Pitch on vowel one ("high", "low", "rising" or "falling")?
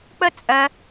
high